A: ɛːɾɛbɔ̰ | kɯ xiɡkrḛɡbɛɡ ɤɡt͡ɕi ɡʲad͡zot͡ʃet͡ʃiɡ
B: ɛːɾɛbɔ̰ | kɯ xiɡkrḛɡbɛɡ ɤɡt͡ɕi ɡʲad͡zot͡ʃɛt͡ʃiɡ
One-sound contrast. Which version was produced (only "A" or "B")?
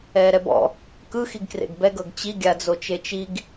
A